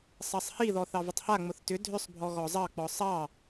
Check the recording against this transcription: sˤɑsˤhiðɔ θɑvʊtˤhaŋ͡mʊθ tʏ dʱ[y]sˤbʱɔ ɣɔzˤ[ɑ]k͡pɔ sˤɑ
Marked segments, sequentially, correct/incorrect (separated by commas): incorrect, correct